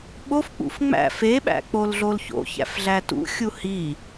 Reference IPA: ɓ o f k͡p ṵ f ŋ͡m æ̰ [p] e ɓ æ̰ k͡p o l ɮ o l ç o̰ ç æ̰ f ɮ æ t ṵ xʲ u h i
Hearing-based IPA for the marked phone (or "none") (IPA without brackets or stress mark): f